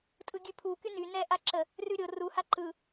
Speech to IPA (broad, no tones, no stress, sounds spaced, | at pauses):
tʼ ɯ ɡʲ ʉ pʰ u k y n y n ɛ ʔ a ǁ ə | r ʉ ɾʲ o r u h a ǃ ɯ